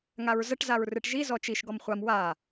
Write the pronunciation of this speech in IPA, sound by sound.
ŋ a ɹ z ə ʈ z a ɹ r ɨ ʈ ʒ i z ɔ t͡ʃ i ʃ ɡ ɔ m χʷ a m w a

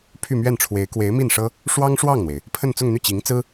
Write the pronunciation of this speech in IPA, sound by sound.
pʰ y˥˧ m ɥ ɛ˥˩ n ʈ͡ʂʰ w e˧˥ ɪ̯ k w e˧˥ ɪ̯ m i˥˩ n ʂ ɤ˥ | ʂ w ɑ˥ ŋ ʂ w ɑ˥˩ ŋ n̪ w e˩ ɪ̯ | pʰ ə˥˧ n t͡s ʊ˥˧ ŋ n̪ y˥˩ t͡ɕ i˧˥ ŋ t͡s ɹ̩˥

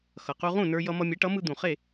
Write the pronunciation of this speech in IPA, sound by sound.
x ʌ˩ q u˧ ʁ ũ˥˩ n ə˞˧ j ʌ˧ m ʌ˧ mʲ e˩˥ ʈ ʌ˩˥ m ɯ˧ d̪ ũ˩ χ e˥˩

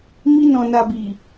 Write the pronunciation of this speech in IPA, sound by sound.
m i˧ n ɔ̃˨ n a˨ b i˨

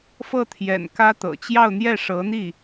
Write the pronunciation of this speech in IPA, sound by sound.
f ɤ˥˩ t̪ʰ j ɛ̰˨˩ n k ä˥ t̪ ɤ̰˨˩ t͡ɕ j ɑ˥˧ ʊ̯ n̪ j ɛ˥˩ ʂ ɤ˧˥ n̪ i˥˩

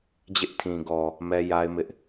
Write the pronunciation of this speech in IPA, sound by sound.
d͡ʑ ɪ˦ ʔ tʰ ĩ˨ ɡ ɔ˨ | m ɛ˦ j a˦ ɪ̯ m ɪ˦ ʔ

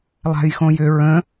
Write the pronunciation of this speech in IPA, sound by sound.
lˠ a̤ j x õ j ʏ ɹ ə̃

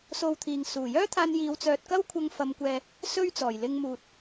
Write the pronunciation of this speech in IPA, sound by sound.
s o˧ w t̪ʰ iː˨ ŋ s uː˨˩ j œː˥ t̪ʰ aː˧ n j iː˨˧ w t͡s œː˨ t̚ k ɐ˥ w kʷʰ ɐ˧ ŋ f ɐ˧ m kʷ ɛː˧ | s ɵ˥ ɥ t͡s ɔː˨˩ j l ɪ˧ ŋ m uː˨ t̚

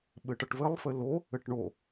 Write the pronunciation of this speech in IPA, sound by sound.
ɓ ɘ ʈ ʌ ʈ v ɘ lˠ f ɘ l o | ɘ ʈ ɳ o

